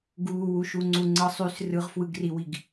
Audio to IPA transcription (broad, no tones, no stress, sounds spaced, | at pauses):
ɡ uː w u ʃ u ŋ͡ǀ u ŋ͡ǀ ɯ sˤ y s r ɯ ʁ f w ɯ ɡ r i w i ɡ